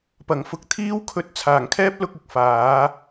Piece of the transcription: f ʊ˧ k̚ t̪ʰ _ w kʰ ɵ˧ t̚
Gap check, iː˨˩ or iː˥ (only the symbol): iː˥